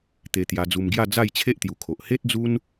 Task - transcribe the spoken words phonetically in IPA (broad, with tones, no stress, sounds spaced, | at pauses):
t̪ e˧ t̪ j a˧ d͡z u˧ m ɡ j a˥˧ d͡z a˥˧ j t͡ɕʰ e˦ ʔ t̪ j u˨˩ kʰ o˨ ʔ h e˦ t̚ d͡z u˦ n